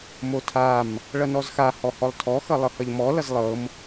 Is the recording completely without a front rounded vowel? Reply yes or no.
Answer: yes